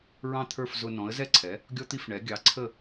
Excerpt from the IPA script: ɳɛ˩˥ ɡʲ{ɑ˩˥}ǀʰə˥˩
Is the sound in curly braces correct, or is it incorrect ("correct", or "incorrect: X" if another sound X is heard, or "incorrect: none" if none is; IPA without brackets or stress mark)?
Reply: correct